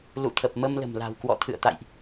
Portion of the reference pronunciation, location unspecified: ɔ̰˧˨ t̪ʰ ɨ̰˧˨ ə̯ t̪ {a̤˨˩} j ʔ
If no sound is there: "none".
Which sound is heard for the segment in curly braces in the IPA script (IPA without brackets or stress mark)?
a̰˧˨